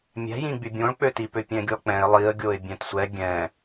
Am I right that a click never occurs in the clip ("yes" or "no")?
yes